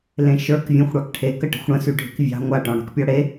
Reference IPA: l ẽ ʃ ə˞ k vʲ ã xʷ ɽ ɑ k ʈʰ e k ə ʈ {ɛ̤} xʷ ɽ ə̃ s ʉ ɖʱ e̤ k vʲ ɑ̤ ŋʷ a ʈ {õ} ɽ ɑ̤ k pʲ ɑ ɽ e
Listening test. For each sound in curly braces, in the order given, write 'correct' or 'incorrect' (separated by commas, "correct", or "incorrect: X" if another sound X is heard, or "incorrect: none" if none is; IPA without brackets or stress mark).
incorrect: ə̤, incorrect: ɔ̃